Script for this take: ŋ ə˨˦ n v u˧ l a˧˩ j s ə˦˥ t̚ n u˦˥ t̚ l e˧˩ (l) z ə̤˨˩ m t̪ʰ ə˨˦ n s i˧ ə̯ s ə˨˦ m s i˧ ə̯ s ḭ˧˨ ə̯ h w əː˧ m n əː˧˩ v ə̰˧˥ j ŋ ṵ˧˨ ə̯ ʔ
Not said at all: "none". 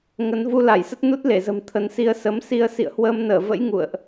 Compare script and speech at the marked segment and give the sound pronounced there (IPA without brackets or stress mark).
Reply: none